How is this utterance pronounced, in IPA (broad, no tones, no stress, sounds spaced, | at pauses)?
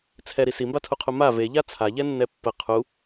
t͡sʰ ɛ ɾ i s i m b a tʰ u qʰ u m a v e ʎ a t͡sʰ a ʎ ɛ nː ɛ pː ə qʰ u